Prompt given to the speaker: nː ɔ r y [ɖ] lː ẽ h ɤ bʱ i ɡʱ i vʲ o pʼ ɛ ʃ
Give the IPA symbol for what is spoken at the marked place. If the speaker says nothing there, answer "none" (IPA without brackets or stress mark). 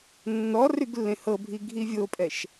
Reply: ɡ